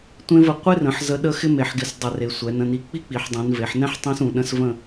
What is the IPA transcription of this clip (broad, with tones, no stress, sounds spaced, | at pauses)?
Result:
tʷ ẽ˧ v ə˧˩ qʷ e˥ r ə̃˩˧ ħ z ə˧ ɗ ə˥˧ x ɪ˥ m e˩˧ ħ ɡ ɪ˧˩ s dˤ ɛ˧˩ r e˩˧ sʷ ɛ˩˧ n ə̃˩˧ n i˧˩ k͡p i˥ k͡p i˩˧ ħ dˤ ũ˩˧ n v e˩˧ ħ n ɛ̃˥ ħ tˤ ĩ˥ s ũ˩˧ ɗ ə̃˥ s v ə̃˥˧